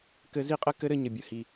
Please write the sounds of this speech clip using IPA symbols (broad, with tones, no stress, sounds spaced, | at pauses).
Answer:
k ɘ˧ z i˦˨ qʼ ɘ˦ k ɘ˦ ɾ ɘ˧ ɲ ə˨ bʲ ə˨ h i˨